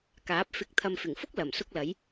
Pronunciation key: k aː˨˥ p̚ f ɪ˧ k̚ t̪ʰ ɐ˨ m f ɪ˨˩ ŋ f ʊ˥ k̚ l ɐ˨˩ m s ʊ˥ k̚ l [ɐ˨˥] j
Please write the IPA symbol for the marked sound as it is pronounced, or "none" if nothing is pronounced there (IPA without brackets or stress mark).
ɐ˨˥